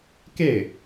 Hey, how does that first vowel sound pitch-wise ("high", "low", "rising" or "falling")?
falling